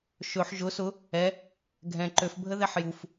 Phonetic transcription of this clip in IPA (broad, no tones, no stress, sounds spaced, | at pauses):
ʃ ɵ ħ ʒ ʊ s ʊ | ɛ | ɡʱ ɛ̃ ǃ ø f bʱ ə ð ɛ ħ j u f